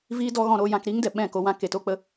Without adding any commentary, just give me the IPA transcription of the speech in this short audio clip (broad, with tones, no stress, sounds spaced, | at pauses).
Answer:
v iː˦ d ɔ˦ ɣ ɔ̃˧ ɾ o˧ j ã˧ k ɾ iː˦ ŋ d ɛ˨ ɓ ɛ̃˦˨ k o˧ w ã˦ k e˨˦ t o˦ k͡p ə˦